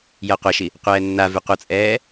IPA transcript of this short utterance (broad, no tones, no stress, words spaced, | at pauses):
jɤqʷaʃi | qʷɛːnːavʉ qʷʌt͡sʼɛː